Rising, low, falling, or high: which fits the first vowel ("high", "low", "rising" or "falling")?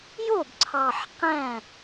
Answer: falling